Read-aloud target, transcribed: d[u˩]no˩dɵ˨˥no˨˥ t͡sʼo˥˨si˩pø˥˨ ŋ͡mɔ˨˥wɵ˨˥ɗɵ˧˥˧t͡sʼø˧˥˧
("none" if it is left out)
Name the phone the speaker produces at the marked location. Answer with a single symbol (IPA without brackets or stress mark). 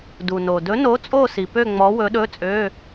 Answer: u˩